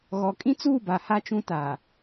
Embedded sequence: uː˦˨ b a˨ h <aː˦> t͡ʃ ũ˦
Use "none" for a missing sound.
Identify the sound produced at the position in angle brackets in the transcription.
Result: a˦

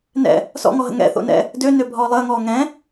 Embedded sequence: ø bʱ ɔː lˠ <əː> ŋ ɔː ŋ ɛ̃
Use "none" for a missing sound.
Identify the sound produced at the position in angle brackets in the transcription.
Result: əː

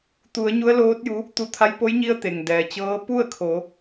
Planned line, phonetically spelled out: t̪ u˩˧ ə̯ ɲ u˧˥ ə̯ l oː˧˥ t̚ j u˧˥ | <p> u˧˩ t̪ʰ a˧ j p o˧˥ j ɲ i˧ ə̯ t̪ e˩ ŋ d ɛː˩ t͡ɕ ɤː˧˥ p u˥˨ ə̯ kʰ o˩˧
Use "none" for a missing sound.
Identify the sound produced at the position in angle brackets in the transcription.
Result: t̪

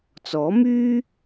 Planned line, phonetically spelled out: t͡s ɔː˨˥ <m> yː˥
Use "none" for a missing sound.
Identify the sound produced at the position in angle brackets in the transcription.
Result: m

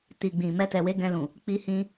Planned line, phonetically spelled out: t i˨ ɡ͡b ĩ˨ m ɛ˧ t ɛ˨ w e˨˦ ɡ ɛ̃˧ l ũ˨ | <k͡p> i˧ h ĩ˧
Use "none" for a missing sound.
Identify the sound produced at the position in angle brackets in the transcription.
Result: k͡p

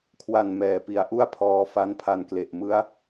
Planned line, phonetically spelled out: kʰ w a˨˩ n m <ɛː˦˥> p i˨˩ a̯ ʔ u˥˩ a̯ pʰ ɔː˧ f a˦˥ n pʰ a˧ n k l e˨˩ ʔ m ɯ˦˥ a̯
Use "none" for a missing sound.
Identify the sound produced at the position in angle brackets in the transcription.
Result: ɛː˨˩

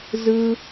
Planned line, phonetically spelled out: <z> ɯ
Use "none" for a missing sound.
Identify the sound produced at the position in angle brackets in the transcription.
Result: z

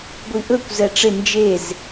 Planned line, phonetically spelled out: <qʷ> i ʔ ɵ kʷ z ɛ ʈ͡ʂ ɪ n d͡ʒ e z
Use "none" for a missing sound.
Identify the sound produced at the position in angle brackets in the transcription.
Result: ɡʷ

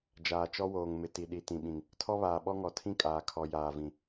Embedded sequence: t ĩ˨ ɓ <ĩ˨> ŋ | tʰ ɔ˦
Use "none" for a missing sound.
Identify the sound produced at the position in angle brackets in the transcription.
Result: ĩ˨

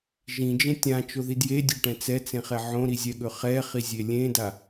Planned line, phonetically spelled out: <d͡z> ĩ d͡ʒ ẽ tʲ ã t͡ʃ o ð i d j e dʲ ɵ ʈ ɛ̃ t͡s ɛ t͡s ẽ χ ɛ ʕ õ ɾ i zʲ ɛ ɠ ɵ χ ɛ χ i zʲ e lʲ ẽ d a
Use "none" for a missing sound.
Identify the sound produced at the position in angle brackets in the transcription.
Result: ʒ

